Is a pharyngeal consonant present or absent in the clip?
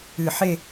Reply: present